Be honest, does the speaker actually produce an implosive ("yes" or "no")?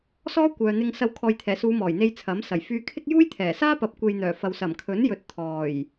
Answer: no